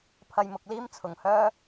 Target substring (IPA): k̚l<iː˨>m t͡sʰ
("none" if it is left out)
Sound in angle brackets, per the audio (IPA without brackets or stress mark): iː˥